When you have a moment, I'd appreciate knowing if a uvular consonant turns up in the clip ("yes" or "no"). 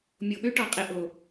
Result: yes